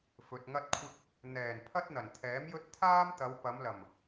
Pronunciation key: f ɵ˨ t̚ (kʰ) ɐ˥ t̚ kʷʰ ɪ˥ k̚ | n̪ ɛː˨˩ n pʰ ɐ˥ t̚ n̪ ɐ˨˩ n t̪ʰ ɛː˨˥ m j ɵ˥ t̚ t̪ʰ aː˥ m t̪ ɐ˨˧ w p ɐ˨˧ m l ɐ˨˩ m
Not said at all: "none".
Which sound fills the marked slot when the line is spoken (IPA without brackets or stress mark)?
ŋ